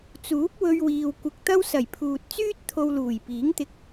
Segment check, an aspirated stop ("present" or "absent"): present